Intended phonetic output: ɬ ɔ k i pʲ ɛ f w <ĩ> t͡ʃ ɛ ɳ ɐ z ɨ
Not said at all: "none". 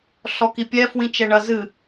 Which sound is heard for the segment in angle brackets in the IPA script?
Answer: ĩ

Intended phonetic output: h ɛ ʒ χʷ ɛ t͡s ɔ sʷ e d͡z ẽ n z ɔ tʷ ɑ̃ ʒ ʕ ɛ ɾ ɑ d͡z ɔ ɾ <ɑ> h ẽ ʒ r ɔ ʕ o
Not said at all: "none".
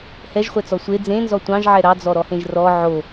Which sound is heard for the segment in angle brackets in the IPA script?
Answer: ɔ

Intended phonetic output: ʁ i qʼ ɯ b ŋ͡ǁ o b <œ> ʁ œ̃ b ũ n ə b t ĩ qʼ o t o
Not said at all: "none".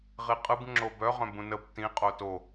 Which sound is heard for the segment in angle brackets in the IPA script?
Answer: œ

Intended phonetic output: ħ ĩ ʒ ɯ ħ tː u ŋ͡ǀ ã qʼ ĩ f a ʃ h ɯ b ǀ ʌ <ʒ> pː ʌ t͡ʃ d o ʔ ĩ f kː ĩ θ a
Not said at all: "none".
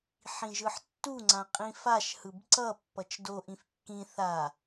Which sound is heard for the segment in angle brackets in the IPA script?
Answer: none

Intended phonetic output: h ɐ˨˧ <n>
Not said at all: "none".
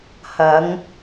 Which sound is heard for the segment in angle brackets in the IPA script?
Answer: ŋ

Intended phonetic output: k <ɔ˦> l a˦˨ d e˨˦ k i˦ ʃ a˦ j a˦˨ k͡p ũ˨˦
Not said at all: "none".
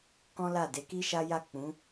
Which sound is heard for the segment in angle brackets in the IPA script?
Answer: ɔ̃˦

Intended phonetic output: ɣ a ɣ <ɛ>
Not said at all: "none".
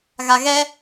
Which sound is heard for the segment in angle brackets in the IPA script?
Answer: ɛ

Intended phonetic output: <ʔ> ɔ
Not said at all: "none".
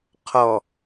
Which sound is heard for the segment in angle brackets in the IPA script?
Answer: qʰ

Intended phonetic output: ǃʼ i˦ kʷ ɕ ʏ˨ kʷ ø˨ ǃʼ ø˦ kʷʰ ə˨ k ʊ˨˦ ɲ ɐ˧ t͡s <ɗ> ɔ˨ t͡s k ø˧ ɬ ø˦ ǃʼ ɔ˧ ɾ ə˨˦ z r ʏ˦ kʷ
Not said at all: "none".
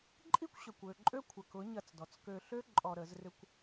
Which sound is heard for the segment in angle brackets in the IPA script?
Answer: d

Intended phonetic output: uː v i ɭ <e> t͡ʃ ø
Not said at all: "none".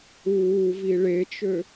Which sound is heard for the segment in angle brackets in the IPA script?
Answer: e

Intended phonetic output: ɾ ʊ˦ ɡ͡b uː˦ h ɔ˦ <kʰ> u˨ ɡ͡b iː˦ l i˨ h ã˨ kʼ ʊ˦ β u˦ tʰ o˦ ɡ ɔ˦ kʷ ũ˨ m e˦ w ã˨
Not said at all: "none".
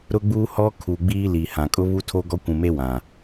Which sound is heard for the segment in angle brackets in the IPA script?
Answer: kʰ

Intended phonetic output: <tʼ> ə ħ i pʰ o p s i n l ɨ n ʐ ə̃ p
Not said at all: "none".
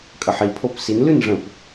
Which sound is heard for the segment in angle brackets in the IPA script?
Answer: kʼ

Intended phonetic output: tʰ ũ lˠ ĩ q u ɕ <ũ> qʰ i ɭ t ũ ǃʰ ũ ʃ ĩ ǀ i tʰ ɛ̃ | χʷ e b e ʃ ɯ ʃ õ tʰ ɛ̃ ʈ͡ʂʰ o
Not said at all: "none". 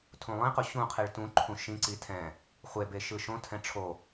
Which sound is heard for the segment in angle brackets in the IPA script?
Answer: ũ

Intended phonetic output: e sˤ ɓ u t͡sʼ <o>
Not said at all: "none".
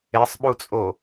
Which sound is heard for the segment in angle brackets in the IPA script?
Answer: o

